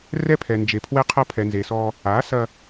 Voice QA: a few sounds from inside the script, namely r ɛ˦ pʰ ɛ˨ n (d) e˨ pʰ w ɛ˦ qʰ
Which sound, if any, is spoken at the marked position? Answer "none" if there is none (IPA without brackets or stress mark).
d͡ʒ